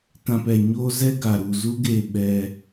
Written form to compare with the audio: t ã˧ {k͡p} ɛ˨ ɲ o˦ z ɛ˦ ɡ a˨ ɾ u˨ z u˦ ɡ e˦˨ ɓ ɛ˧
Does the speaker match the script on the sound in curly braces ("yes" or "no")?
no